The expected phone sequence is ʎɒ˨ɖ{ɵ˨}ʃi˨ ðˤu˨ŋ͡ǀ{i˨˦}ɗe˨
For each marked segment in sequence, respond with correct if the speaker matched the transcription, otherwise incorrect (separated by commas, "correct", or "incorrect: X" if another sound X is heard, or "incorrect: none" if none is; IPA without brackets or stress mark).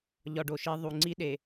incorrect: o˨, incorrect: i˦